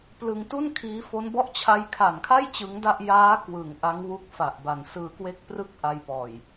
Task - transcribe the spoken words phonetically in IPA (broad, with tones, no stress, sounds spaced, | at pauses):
p l ɯ˧ ŋ t u˥˩ n kʰ iː˦˥ f o˦˥ n b ɔ˥˩ ʔ t͡ɕʰ a˧ j kʰ a˨˩ n kʰ a˥˩ j t͡ɕ ɯ˦˥ ŋ d a˥˩ ʔ j aː˦˥ k w ɯ˩˦ ŋ ʔ a˦˥ ŋ w u˦˥ k̚ f a˨˩ ʔ b a˨˩ n s ɯː˧ k w e˥˩ k̚ p r ɯ˥˩ k̚ ʔ a˧ j p ɔː˨˩ j